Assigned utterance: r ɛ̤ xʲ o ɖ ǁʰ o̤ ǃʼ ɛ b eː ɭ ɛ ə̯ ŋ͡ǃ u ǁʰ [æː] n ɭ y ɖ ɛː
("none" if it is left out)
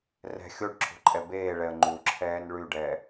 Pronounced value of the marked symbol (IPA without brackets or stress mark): ɛː